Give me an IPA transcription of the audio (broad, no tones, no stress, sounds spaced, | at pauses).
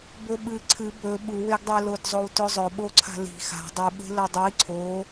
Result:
b ɵ ɓ ɨ ǀʰ ɨ b ɵ ɓ u w e ɡ dˤ e l o d zˤ o w t ɵ zˤ ɵ ɓ o ǀʰ a̤ l i̤ x a̤ dˤ ɨ ɓ e̤ l ɐ dˤ i ǀʰ o